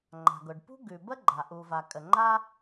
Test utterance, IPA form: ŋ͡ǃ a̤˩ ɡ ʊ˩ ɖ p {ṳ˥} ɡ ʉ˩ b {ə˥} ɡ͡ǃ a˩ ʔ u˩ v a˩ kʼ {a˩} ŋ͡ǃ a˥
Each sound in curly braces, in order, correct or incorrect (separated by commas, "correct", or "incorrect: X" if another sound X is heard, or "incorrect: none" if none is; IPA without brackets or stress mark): correct, correct, incorrect: ə˩